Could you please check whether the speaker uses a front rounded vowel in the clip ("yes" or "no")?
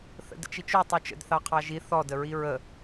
yes